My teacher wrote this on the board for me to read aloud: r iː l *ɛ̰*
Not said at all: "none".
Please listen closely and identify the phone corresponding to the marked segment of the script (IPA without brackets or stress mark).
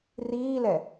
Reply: ɛ